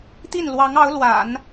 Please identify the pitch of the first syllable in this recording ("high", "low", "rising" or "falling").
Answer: falling